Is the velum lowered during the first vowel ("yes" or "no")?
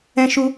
yes